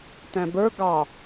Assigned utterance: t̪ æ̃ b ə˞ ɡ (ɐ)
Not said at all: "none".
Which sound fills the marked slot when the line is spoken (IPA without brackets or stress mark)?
ɑ